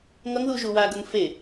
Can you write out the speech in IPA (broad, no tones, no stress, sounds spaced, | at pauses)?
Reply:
ŋ ʌ ŋ ð u ʒ u w a ɡ ʌ ŋ f e